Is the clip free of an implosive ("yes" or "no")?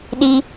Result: no